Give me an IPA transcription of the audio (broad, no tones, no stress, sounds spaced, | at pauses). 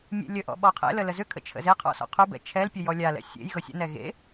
mʲ ḛ lʲ ə ʔ ɔ̰ ɓ ɔ qʰ ḛ l ə l ə z ʏ kʰ ə̰ t͡ʃʰ ə̰ z e qʰ ɔ̰ s ɔ̰ qʰ u b ɛ̰ t͡ʃʰ ɛ l pʲ ə j ɔ lʲ a l ɛ̰ sʲ ḛ j ɣ ɤ sʲ ə̰ n ɛ ɣ ḛ